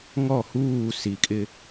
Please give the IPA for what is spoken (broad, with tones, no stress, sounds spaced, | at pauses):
ŋ ɔ˦˨ h uː˦˨ s i˨ kʼ ɪ˦